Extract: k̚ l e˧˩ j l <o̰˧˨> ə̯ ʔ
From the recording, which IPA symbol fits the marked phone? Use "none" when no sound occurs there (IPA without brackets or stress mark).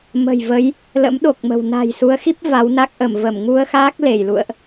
ṵ˧˨